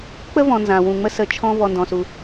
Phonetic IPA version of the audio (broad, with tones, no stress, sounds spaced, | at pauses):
k͡p ə˥ v ɔ̃˨ n z ã˩ w ũ˩ ŋ͡m ə˥ s ə˩ t͡ʃʰ ɔ̃˦ v ɔ˨ n d ɔ̃˩ s u˩